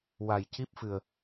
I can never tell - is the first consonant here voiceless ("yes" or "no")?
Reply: no